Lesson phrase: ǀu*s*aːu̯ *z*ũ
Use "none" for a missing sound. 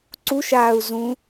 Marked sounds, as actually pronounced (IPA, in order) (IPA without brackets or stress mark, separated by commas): ʃ, z